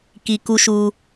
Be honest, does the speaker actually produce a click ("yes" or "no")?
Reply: no